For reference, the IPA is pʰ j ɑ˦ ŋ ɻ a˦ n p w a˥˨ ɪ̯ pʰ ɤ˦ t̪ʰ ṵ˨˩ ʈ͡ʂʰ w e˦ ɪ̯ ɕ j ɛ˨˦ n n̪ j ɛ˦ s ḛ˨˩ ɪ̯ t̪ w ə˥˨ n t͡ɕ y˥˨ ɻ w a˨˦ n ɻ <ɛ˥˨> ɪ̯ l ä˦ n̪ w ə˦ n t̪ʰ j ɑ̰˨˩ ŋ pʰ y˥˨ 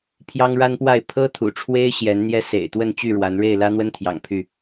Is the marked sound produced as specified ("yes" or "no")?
no